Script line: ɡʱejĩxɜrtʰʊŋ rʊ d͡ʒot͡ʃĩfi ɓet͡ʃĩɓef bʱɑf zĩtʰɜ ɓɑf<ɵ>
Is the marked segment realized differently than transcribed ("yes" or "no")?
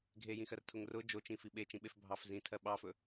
no